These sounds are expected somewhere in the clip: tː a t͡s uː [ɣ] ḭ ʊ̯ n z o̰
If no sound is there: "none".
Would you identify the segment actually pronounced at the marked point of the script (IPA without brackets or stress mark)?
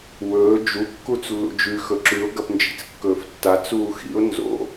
x